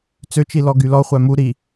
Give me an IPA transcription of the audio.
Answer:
t͡s ø t͡ʃ i l ɔ ɡ y l ɔ χʷ æ m u ɾ i

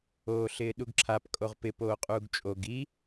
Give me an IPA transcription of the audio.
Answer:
oː ɬ ɪː ɗ u ɡ ǁʰ a p kʼ o ʁ p ɪ p oː qʼ uː ɡ t͡ʃʼ o ɡ i

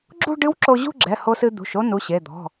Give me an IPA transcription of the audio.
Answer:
ɡ͡ǁ ṳ˥˧ ɖ ɨ˧˥ w ǁ o˧ ʑ ṳ˥˧ ɡ͡ǁ ɛ˩˧˩ h o˧ s ɨ˧ d̪ ṳ˩˧˩ ʃ o˥˧ n u˩˧˩ ɕ e˩˧˩ d̪ ɔ̤˩˧˩

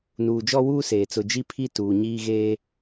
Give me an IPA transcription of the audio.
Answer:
n uː˨ d͡ʒ ɔ˦ w uː˦ s eː˨ t͡s ʊ˨ d͡ʒ i˦ pʰ i˦ t uː˨ ɲ iː˦ ɣ eː˦

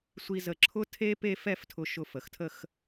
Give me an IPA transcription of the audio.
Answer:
sʷ i˧ z ə˧˩ ǁʰ ʊ˥ tʰ e˥ p e˥˧ f ɛ˥˧ f tʰ ʊ˧ ʃ ʊ˧˩ f ə˩˧ x tʰ ə˥˧ x

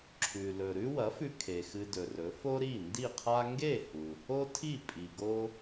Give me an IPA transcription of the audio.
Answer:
ǁʰ ʉ˩ l ɵ˩ ɾ ʉ˥ w ɐ˩˥ f ʉ˧ kʰ e˩ x ɨ˧ d ɵ˩ r ɵ˩˥ f o˥ ɾ i˥˩ n d i˥˩ qʰ a˥ ŋ ɡ e˥˩ h u˩ | o˥ tʰ i˥˩ pʼ i˩ ɡ o˥

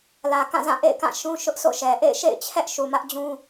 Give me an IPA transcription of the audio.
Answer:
l ä˨ k ã˦˨ z ã˦˨ ʔ ḛ˦˨ ɪ̯ k ã˦˨ ʃ ũ˦ ʃ ʊ˦ ʔ s o̰˦˨ ʃ ɛ˨ ʔ ḛ˦˨ ɪ̯ ʃ ḛ˦˨ ɪ̯ t͡ɕʰ ɛ˦ ʔ ʃ u˨ m ä˦ ʔ d͡ʑ ũ˦

